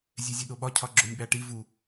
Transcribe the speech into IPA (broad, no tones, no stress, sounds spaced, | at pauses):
zʲ e zʲ e ɗ o ɓ ɒ cʰ ɒ ɡ͡ǁ o nʲ ɓ æ ʈ i v u